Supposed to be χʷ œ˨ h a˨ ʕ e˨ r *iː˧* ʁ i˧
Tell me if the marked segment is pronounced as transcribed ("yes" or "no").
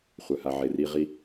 yes